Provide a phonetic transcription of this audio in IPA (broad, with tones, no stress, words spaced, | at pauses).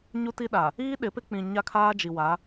ɲu˦ti˦ɗaː˨ | iː˦ ɗɪ˨˦pɪ˦k͡pĩ˨ ɲa˦kʰaː˦d͡ʒi˨wa˨˦